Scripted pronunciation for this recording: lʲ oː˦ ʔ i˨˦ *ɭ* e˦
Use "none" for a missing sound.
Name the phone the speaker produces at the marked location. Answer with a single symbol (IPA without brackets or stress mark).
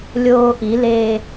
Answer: l